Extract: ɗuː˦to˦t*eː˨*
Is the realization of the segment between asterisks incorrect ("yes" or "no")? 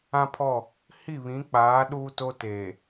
no